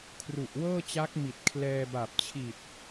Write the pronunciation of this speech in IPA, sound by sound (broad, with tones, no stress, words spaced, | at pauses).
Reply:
kʰru˨˩ʔwɤː˥˩t͡ɕa˦˥k̚ mi˨˩t̚kʰlɛː˧ba˨˩p̚t͡ɕʰi˨˩t̚